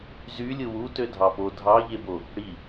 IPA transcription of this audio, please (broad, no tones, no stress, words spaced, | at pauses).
zylʲɯ wu tødʱɑpo dʱɑʎebo | ɽi